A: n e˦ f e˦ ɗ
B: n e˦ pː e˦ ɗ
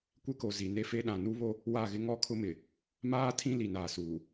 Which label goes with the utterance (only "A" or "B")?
A